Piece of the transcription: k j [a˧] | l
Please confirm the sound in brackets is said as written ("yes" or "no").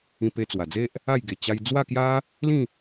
no